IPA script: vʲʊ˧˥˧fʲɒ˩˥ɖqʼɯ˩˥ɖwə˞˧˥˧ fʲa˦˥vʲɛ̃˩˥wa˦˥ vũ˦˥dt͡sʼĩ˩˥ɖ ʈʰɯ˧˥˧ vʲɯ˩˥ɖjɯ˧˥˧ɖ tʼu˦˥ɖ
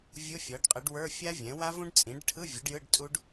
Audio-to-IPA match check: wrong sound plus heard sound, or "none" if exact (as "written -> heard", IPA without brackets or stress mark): d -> ɖ